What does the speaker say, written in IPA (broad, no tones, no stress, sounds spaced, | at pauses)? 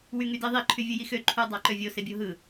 w y ŋ y d i ðˤ i ǃʰ y vʲ ɯ j i x ø ǃʰ u dˤ ɑ ǃ ø vʲ o s e bʲ o ɦ ɯ